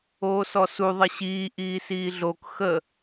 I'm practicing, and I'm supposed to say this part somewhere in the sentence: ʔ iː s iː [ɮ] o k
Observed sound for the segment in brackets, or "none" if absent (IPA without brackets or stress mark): ɮ